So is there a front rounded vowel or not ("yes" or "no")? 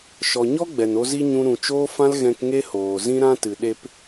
no